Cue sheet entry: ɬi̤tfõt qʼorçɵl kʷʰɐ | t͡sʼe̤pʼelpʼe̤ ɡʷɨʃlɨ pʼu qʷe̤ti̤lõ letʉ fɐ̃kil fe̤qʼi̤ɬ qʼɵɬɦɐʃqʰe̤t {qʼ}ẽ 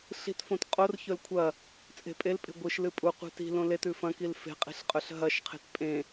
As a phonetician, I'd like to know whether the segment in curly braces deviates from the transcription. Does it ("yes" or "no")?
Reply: yes